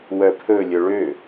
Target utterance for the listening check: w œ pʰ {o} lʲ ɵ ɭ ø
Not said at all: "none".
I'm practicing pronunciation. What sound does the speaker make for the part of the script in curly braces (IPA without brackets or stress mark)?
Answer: ɵ